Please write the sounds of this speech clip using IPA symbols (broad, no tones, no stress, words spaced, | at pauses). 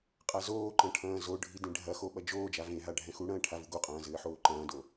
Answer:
qʼazoːǃɐ̃ ʈʰɐ̃ːzoɖʱi dẽɖʱɐxo ɓɐd͡ʒoːd͡ʒa vẽɦa ɖʱɛ̃xuɽɐ̃ː ʈʰavuɡoqʼɐ̃ː zɘːħoːǃɐ̃ːdo